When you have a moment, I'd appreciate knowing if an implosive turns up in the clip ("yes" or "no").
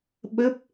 yes